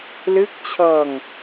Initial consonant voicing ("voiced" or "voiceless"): voiced